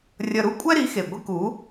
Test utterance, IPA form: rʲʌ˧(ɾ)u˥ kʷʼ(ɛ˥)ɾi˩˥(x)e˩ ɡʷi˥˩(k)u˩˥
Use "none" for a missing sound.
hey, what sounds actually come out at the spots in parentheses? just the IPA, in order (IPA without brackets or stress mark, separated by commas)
ɾ, ɛ˥, x, k